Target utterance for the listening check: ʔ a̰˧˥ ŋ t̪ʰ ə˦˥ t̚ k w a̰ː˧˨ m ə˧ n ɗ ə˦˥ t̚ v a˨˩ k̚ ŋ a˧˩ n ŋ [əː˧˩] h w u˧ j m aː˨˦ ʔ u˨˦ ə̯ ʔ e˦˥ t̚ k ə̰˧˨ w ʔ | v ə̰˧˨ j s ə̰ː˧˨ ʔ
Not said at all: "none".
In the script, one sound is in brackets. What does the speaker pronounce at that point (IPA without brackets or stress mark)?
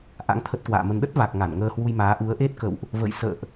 əː˧